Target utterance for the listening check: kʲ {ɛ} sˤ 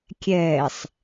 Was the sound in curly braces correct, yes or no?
yes